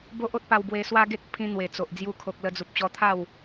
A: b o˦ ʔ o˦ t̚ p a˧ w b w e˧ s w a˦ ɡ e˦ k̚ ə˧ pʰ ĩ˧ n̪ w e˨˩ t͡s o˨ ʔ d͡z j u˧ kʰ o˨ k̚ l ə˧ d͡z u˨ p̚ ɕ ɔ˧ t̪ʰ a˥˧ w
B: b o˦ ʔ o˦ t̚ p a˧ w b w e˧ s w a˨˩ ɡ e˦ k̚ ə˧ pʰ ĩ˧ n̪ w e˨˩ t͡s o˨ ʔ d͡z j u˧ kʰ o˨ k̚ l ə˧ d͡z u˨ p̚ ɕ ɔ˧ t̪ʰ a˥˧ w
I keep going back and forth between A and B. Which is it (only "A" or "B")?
A